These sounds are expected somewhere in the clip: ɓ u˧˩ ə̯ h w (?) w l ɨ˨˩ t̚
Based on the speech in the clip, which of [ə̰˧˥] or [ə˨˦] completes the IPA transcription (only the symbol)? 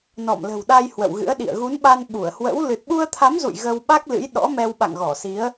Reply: ə̰˧˥